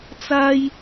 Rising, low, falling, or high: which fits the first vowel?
high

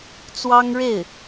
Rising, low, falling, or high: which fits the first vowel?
high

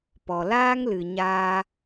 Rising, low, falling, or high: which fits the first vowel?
low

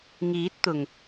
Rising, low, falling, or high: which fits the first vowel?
rising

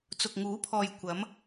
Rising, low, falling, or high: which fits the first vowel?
low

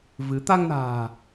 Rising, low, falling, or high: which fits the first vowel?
rising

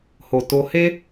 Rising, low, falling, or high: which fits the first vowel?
low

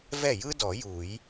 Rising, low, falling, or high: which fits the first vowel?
falling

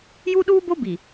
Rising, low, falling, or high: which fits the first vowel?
high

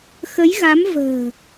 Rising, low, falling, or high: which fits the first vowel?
rising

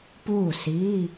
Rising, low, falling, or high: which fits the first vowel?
falling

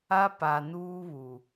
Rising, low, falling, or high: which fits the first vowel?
high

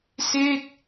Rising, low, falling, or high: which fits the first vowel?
falling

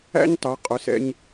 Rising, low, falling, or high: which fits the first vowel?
high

